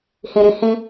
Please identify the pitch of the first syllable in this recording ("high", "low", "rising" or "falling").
low